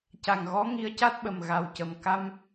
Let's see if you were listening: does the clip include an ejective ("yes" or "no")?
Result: no